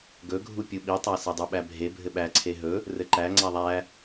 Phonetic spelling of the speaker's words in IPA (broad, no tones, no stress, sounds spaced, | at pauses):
ɡ ɵ ɡʱ u pʲ u ɓ i tˤ æ s e dˤ u ɓ æ bʱ e bʱ ɘ ɓ æ ǀʰ e ɦ ɵ | r ɘ ǃ æ ŋ͡ǀ æ ðˤ æ